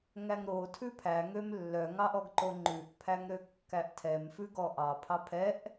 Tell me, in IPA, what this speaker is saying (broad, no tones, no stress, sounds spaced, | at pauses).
ŋ æ ŋ ɾ o tʰ ʉ pʰ æ ŋ ø m lː œ ŋ ɑ ʔ ɔ ɡ ǃ o ŋ͡ǃ ʉ ʔ pʰ æ ŋ ɾ ø kː æ ʔ tʰ ɛ m f ʉ ɡ ɔ ʔ ɑ pʰ ɑ pʰ ɛ ʔ